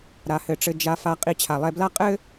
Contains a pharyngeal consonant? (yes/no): no